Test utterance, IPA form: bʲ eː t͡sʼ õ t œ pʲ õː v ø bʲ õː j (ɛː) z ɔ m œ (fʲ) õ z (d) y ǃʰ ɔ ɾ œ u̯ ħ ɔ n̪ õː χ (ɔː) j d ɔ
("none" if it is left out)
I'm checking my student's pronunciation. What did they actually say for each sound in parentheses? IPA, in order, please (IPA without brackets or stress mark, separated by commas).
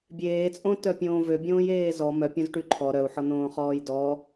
eː, pʲ, ʈ, ɔː